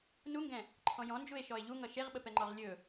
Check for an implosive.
present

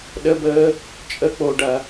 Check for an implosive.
present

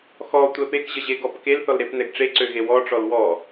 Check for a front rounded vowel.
present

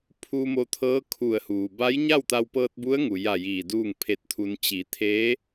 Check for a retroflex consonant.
absent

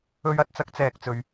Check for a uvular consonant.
absent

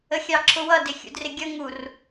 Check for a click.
present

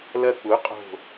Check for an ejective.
present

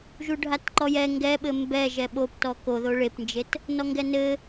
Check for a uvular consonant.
absent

